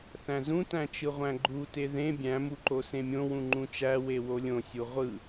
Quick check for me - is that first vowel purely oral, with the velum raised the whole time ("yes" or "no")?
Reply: no